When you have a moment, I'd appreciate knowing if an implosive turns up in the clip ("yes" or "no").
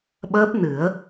yes